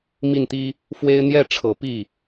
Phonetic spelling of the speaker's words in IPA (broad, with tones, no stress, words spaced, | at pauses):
mi˥˩nt̪i˥ | fwe˥ɪ̯ n̪jɛ˥˩ʈ͡ʂʰɤ˨˩ pi˥˩